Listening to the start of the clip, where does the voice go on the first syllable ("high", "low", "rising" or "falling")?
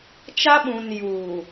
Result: high